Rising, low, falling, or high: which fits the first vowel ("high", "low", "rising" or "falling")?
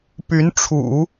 rising